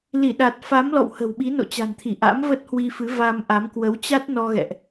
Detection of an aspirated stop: present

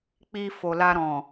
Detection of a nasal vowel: present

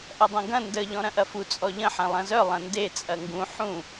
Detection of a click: absent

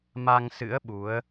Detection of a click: absent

